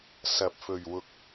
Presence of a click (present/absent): absent